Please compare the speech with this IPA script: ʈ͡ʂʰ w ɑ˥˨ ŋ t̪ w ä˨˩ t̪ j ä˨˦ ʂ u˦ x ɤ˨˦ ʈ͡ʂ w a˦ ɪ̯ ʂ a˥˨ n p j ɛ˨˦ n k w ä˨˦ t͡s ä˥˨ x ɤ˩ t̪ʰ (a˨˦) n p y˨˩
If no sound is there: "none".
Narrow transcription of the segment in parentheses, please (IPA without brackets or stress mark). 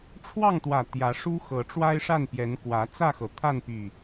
a˥˨